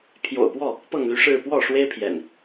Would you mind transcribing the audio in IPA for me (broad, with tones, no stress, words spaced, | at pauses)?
pʰjo̰˨˩ʊ̯pwɔ˥˨ | pɤ˥˨ŋly˦ʂɻ̩˥˨ pwɔ˥˨ ʂwe˦ɪ̯pʰjɛ̰˨˩n